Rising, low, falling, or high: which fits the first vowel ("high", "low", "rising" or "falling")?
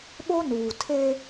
high